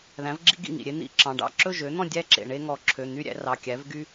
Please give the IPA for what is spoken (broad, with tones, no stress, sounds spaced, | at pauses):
ð æ̃˩˥ v ɡ͡ǁ ḭ˦ ɡ ḭ˩˧˩ ŋ ḭ˩ ɾʲ e˦ n̪ ḭ˩˥ ǁ ɑ̃˩˧˩ ɖ ɑ̰˦ ǁ ɵ˥˩ ʒ ø˩˥ n̪ ɔ̃˥˩ dʲ æ˥˩ ǁ ḛ˩ ɳ e˦ ŋ ɔ˩˥ ǁʰ ø˩˧˩ n̪ y˥˩ ɾʲ æ̰˦ r ɑ˩˧˩ kʲ æ˩˥ v ɡ y˦